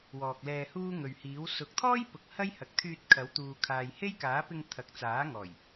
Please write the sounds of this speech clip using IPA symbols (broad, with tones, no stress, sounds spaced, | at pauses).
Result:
w ɔː˨ k̚ l ɛː˧ h uː˥ ŋ ɵ˨ ɥ h iː˨˥ w s ʊ˨ k̚ t̪ʰ ɔː˥ j p ʊ˨ k̚ h ɐ˥ j h ɐ˨ k̚ t̪ʰ yː˧ t̚ kʰ ɐ˨˥ w t̪ uː˨ kʰ aː˨ j h e˥ j k aː˨˥ p ɪ˧ ŋ t̪ʰ ɐ˨ k̚ t͡s aː˨˥ ŋ ɔː˨˩ j